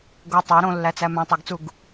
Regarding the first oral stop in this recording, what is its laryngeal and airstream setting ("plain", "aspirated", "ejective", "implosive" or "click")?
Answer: plain